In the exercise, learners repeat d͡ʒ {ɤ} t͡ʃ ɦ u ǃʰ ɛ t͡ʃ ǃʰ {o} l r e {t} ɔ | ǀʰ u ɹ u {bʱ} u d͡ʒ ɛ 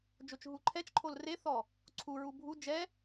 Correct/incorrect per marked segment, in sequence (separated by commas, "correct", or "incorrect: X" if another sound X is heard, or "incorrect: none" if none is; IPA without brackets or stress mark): incorrect: o, correct, incorrect: θ, correct